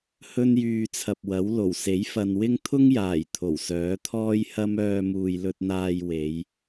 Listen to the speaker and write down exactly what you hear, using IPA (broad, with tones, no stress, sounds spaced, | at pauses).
h ɵ˥ n j yː˧ t͡sʰ ɐ˨ p̚ w ɐ˨˥ w l o˨˩ w s e˨˥ j f ɐ˨ n w ɪ˥ ŋ t̪ʰ ʊ˥ ŋ j aː˨˩ j t̪ʰ o˨˩ w s œː˨˥ t̪ʰ ɔː˥ j h ɐ˥ m œː˧ m uː˨ j l ɵ˧ t̚ n̪ aː˧ j w e˨˧ j